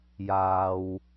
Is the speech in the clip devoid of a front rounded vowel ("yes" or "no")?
yes